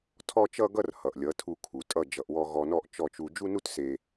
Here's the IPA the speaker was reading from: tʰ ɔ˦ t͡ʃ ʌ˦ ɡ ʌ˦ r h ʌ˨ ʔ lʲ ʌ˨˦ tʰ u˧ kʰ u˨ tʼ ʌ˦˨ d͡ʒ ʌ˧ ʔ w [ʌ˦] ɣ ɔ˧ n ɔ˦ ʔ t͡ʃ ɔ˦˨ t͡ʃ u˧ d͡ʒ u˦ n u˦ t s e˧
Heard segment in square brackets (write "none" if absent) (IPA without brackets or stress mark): ɔ˦